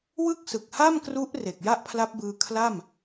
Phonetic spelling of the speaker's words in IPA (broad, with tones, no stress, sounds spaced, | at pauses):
w ɯ˥˩ k̚ s ɯ˨˩ k̚ h a˥˩ m k r u˦˥ ʔ r e˨˩ k̚ j a˥˩ ʔ pʰ l a˦˥ p̚ b ɯː˧ kʰ l a˥˩ m